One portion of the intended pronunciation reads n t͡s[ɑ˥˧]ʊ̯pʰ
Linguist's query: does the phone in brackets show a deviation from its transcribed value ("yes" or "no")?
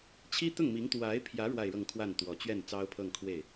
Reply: yes